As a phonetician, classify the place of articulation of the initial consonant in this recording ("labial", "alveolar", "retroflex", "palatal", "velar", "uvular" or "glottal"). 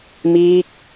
labial